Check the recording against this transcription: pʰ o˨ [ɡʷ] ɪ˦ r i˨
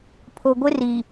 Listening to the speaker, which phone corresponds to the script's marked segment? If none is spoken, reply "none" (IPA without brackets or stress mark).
ɡʷ